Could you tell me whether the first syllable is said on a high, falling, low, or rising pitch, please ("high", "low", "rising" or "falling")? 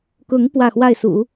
rising